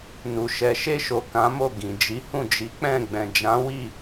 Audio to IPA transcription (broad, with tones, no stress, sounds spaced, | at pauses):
n u˨ ʃ ɛ˨ ʃ e˧ ʃ o˨ k ã˨˦ m o˦˨ ɡ ĩ˨ d͡ʒ i˨˦ h ũ˦˨ d͡ʒ i˨˦ k͡p ɛ̃˦˨ ɡ͡b ɛ̃˨ d͡ʒ ã˨˦ w i˦˨